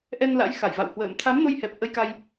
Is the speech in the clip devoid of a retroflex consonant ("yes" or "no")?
yes